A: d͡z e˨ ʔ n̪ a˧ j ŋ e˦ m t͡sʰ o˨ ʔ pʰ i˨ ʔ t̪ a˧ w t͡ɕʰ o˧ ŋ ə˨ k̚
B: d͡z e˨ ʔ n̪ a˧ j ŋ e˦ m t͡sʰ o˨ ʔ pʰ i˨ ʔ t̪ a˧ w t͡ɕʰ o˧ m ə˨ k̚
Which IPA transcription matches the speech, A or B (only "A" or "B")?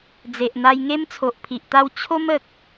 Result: B